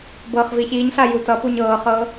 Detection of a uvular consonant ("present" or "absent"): present